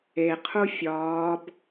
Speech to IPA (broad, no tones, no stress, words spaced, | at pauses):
eqʰu fʲɒːb